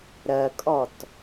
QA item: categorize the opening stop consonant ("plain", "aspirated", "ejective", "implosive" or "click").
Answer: ejective